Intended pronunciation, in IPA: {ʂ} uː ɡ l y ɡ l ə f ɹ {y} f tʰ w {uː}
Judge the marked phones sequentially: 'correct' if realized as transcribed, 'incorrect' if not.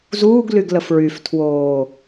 incorrect: z, correct, incorrect: oː

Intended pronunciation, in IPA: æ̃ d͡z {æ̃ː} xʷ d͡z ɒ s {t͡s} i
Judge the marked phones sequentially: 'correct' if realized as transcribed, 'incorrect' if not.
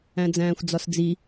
correct, incorrect: d͡z

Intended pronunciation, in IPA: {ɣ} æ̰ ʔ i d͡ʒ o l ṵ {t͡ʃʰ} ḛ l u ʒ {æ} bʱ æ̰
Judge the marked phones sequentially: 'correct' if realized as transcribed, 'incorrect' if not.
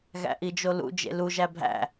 correct, incorrect: d͡ʒ, correct

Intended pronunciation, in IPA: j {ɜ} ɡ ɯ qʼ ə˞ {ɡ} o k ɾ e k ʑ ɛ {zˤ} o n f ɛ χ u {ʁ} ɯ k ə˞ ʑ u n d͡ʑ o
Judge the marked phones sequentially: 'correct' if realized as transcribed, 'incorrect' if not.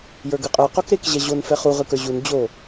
incorrect: ə˞, incorrect: q, incorrect: ʑ, correct

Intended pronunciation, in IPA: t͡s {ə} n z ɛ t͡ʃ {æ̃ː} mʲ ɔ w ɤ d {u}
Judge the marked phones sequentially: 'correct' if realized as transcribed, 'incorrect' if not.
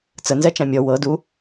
correct, incorrect: æ̃, correct

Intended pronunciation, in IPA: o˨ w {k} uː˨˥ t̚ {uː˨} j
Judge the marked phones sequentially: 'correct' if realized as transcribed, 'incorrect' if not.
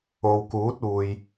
correct, correct

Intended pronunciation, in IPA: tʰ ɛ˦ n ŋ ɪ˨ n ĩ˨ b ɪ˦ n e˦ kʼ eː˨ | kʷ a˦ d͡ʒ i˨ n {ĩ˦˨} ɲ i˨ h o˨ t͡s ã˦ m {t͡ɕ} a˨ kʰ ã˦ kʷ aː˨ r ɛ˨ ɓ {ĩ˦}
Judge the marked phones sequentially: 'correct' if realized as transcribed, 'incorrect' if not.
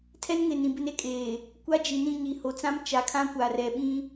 correct, incorrect: t͡ʃ, correct

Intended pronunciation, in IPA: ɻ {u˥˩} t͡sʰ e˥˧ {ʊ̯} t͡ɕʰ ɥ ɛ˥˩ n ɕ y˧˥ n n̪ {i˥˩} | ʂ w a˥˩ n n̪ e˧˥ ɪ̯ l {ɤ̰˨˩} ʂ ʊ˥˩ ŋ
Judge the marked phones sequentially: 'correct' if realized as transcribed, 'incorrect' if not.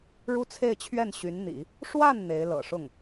incorrect: u˥, incorrect: ɪ̯, incorrect: ḭ˨˩˦, correct

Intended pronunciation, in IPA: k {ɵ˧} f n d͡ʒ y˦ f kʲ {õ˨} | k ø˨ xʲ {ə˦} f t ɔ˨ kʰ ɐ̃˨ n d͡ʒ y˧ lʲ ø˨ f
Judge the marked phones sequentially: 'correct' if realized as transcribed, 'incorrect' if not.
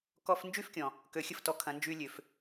incorrect: ɔ˧, incorrect: ɔ̃˨, correct

